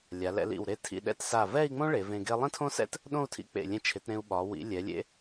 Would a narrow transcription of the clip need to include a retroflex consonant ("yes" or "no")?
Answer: yes